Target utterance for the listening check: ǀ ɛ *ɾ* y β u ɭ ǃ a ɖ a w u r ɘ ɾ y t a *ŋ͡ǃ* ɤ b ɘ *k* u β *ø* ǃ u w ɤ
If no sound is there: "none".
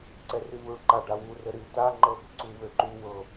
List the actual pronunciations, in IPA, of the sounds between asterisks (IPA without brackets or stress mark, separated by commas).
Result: r, ŋ͡ǃ, ǀ, ø